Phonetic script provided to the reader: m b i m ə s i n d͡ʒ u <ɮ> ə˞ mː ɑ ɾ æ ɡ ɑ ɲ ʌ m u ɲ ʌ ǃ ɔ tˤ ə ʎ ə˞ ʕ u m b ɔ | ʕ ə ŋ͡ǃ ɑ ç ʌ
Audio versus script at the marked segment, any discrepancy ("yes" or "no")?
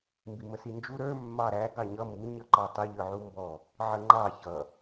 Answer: yes